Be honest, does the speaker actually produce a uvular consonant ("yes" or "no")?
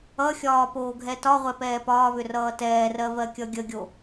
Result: yes